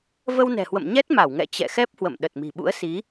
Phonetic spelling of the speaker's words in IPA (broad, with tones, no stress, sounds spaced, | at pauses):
v ə˧ w n ɛ̤˨˩ h w ə̰˧˨ m ɲ ɛ˦˥ t̚ m a˧˩ w ŋ ɛ̰˧˨ t͡ɕ ɛ̰˧˨ x ɛ˦˥ p̚ h w ə̰˧˨ m ɗ ə˨˩ t̚ m i̤˨˩ ɓ ṵ˧˥ ə̯ s i˨˦